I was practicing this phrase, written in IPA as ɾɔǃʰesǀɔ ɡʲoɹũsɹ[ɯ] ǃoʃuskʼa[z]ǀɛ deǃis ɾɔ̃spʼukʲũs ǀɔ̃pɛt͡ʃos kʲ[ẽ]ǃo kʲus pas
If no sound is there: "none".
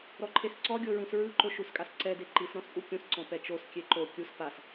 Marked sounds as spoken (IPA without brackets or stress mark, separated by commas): ɯ, s, e